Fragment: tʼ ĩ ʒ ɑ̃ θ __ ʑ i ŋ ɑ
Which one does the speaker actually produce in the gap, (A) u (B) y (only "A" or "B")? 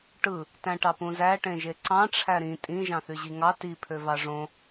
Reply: B